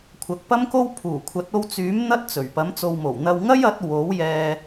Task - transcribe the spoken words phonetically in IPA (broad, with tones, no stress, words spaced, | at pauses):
kʷʰɐ˨k̚pɐ˥mko˥w pʰuː˨˩kʷʰɐ˨˥t̚ o˧wt͡syː˨˥m n̪ɐ˥t̚t͡sɵ˨˩ɥ pɐ˨˥mt͡so˨wmo˨˩w n̪ɐ˧wŋɐ˥jɐ˨˥t̚ wo˨˥wjɛː˧